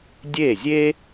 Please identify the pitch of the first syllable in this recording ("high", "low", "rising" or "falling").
falling